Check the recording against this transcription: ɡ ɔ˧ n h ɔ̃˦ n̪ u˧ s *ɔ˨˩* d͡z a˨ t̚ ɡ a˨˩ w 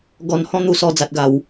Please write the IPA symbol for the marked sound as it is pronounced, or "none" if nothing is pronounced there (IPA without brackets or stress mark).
ɔ˧